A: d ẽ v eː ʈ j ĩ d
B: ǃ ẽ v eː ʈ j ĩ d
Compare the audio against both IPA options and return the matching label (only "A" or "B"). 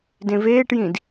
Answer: A